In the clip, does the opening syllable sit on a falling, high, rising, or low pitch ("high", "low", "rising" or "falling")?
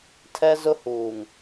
high